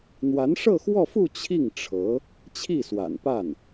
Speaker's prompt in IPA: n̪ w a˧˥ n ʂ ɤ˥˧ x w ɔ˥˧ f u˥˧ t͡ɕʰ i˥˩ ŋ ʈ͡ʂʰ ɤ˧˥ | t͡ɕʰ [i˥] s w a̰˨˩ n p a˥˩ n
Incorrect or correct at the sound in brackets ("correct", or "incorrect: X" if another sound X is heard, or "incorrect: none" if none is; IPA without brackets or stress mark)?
incorrect: i˥˩